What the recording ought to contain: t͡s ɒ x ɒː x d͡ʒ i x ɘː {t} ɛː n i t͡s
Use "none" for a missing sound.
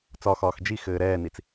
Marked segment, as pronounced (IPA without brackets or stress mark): ɾ